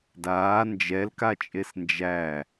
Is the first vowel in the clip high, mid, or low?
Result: low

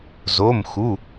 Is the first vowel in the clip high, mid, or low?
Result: mid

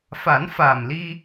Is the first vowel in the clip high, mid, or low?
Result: low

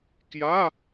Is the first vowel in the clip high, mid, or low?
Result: low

